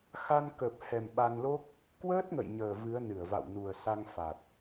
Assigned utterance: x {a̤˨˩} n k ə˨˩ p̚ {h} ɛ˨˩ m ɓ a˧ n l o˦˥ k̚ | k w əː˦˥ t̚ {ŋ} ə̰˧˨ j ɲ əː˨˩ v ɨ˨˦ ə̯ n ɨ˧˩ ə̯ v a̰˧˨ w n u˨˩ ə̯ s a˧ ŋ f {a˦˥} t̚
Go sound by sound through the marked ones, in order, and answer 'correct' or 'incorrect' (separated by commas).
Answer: incorrect, correct, correct, incorrect